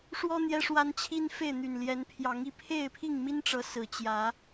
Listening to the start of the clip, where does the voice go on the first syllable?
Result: high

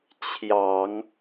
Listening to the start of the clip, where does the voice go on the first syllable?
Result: low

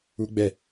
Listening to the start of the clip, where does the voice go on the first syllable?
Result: high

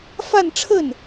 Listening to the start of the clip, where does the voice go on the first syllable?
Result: falling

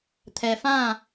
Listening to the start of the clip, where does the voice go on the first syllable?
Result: low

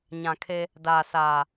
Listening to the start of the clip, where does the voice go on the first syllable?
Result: low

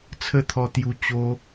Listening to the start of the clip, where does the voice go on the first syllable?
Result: high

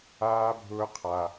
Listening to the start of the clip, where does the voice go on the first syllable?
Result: high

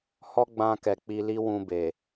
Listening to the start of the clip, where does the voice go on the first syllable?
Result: high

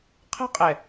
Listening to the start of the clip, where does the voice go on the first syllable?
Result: high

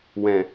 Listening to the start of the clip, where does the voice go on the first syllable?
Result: low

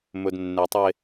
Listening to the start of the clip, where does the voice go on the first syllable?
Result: low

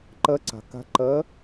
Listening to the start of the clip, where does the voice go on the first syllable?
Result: rising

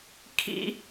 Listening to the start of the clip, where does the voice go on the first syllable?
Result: high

